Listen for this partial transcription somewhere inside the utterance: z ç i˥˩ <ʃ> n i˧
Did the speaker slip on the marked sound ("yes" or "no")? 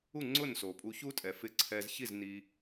yes